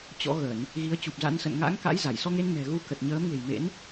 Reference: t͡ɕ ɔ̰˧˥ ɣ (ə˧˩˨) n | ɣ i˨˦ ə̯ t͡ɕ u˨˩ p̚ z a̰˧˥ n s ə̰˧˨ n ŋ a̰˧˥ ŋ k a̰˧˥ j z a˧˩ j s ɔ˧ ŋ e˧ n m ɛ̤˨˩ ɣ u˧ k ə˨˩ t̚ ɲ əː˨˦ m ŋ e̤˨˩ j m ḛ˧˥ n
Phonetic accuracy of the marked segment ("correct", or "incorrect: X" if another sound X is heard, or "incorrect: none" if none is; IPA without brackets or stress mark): correct